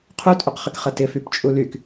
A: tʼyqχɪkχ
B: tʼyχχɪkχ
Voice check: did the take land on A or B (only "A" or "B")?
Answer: A